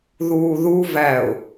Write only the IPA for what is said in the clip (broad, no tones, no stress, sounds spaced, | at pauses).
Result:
ð uː ð u v æ ʊ̯